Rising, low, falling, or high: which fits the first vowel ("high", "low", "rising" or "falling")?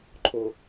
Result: low